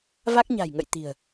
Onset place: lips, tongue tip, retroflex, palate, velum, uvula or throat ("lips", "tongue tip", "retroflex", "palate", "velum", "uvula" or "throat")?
lips